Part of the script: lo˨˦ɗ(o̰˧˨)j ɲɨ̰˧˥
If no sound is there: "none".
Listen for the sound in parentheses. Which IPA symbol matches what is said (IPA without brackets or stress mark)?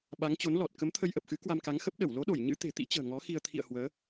o˧˩